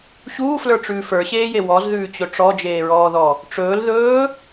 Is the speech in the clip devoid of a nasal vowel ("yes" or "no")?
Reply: yes